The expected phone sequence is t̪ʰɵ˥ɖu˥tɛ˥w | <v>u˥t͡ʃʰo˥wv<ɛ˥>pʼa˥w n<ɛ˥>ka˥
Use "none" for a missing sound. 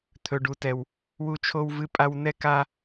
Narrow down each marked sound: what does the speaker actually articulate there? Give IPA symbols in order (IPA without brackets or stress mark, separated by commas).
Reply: w, ɨ˥, ɛ˥